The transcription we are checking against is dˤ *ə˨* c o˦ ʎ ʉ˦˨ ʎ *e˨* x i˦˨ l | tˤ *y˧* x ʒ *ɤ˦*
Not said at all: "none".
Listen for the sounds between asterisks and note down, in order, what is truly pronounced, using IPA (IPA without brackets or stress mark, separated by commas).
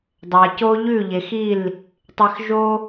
a˨, e˨, e˧, o˦